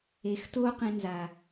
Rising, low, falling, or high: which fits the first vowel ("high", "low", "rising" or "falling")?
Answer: low